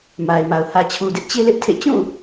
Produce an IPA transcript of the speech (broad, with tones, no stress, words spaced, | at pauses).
ma˨ɪ̯ma˨ʊ̯ hä˨t͡ɕʰu˨dɪ˦ʔ t͡ɕe˦lɪ˦ʔ tʰḛ˦˨ t͡ɕũ˦˨